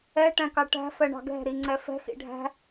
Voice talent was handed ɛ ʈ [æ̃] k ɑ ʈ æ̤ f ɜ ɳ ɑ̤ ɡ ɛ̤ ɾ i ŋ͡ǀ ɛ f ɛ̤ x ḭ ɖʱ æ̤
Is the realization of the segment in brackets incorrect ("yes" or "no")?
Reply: no